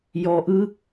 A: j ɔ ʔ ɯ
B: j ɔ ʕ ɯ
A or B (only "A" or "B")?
A